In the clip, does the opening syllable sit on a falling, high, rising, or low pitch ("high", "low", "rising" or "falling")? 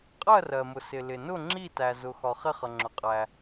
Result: falling